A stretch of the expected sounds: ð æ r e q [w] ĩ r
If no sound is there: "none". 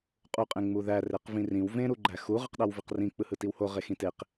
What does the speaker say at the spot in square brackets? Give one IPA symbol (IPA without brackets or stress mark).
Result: v